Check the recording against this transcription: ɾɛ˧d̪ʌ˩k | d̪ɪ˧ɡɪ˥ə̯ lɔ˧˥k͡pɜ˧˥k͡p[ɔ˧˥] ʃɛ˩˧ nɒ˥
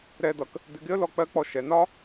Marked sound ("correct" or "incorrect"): incorrect